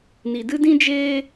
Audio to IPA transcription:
n i˨ d ɨ˦ d ĩ˧ d͡ʒ eː˧

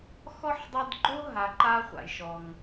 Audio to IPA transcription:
x ɔ˥ ħ dˤ e˦ d ɡ͡ǃ o˥ ɦ a˨ ǃ a˦ χʷ a̰˩ j ʃ ɔ˩ ŋ

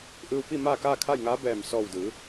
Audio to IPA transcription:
ʔ ɯː˧ w p i˥˨ m aː˥˨ k aː˥˨ kʰ a˥˨ j ŋ aː˧˥ b ɛː˧˩ m s ɔː˧˩ w d ɯː˩˧

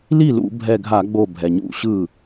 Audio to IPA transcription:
l i˥˩ l ṵ˧˩˧ bʱ ɛ˧˩ ɡʱ a˧˩˧ ɡ͡b o˧˩ bʱ ɛ˩ ɲ ṵ˧˩˧ ɕ ɯ˥˩

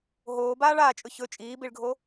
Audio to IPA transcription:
ɦ oː b aː ɭ aː t͡ʃʼ ɵ ç ɵ t͡ʃʼ iː b i ɭ ɡʱ o

